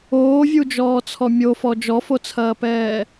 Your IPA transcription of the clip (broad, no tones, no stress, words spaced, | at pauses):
oːvʲud͡ʒɔːt͡sʰɔ mʲofɔ d͡ʒɔfot͡sʰɐːpɛː